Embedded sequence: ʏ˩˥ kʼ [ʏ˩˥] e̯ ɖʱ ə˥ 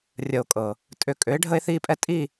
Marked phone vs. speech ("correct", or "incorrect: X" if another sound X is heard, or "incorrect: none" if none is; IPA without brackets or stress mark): correct